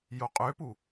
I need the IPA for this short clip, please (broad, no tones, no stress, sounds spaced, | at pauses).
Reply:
j o qʼ ø p u